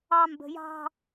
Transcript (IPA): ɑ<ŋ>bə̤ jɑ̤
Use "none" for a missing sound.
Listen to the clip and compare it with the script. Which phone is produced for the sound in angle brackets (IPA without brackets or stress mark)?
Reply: m